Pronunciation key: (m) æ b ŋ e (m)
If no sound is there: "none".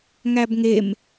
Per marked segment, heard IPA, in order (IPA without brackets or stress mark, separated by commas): ŋ, m